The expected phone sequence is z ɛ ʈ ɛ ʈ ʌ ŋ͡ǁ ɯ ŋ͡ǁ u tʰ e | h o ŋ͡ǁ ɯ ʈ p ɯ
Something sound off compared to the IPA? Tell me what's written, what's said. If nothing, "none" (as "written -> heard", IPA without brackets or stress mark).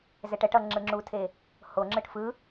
p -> f